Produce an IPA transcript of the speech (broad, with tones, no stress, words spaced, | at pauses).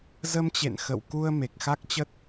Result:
zə˧mt͡ɕḛ˧˨n xə̰˧˨wku˧ə̯ me˨˩k̚xa˦˥k̚t͡ɕə˦˥t̚